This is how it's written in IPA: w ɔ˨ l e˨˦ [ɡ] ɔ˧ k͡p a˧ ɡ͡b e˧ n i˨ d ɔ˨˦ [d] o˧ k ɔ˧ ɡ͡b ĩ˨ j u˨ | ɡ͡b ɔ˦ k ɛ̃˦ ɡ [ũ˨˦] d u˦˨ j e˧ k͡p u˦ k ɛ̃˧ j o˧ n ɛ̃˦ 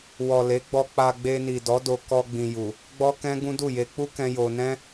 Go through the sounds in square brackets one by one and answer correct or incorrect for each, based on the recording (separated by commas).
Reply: incorrect, correct, incorrect